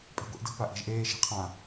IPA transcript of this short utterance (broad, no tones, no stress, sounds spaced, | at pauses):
pʼ e̤ ɡʷ i ʔ d ə̤ p a ʔ e̤ ʒ ʔ eː ʃ i̤ qʰ ã